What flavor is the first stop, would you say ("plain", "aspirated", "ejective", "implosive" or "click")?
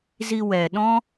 implosive